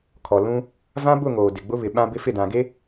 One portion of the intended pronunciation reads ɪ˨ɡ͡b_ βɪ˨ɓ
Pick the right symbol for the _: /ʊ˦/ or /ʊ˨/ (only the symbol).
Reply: ʊ˦